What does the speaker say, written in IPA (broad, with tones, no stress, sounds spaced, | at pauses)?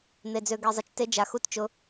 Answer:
n̪ e˦ d͡z ø˦ ɡ e˦ zˤ ə˦ t͡ʃ t e˦ d͡ʒ a˧ x u˦ t t͡ʃ ʊ˦